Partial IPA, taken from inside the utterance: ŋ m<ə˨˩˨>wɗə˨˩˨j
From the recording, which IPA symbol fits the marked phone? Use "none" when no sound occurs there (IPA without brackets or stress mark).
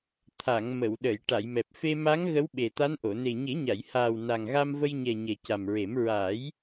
ə˨˩˨